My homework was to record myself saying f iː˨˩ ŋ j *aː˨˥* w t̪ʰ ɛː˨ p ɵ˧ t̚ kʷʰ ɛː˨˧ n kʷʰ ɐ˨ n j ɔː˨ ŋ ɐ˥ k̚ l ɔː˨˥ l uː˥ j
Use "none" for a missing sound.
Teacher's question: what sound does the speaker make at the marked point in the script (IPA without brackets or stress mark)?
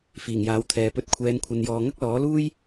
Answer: aː˨˥